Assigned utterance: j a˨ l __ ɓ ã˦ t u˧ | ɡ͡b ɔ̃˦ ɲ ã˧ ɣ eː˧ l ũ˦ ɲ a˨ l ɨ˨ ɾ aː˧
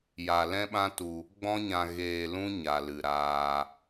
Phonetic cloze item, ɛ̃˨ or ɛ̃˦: ɛ̃˦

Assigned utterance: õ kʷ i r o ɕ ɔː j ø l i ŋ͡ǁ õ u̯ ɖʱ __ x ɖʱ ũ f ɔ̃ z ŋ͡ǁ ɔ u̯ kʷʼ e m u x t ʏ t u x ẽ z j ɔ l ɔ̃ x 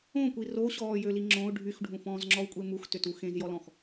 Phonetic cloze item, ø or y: y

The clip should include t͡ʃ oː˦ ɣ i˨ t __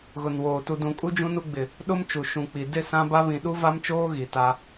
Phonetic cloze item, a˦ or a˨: a˦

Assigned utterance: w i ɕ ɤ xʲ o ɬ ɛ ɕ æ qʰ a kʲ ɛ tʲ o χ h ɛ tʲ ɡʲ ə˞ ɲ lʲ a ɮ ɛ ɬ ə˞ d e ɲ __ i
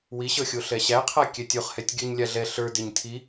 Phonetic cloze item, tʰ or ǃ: tʰ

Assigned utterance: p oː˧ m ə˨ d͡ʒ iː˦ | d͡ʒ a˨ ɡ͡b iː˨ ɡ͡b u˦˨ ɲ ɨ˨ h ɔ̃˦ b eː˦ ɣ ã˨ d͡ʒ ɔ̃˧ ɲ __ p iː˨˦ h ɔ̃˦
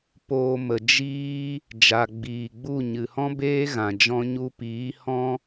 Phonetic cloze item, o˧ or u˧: u˧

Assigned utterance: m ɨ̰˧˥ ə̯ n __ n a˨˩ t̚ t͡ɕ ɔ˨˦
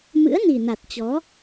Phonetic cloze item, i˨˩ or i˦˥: i˨˩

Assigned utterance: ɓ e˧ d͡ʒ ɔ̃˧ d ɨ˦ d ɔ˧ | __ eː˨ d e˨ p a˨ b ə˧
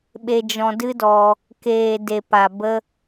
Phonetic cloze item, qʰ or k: k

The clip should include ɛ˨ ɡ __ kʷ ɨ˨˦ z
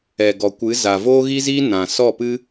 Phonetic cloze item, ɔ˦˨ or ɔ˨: ɔ˨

